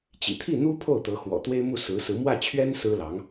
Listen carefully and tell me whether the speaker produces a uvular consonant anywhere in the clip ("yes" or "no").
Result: no